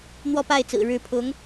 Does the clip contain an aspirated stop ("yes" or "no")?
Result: yes